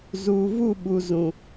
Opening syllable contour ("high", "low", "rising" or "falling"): low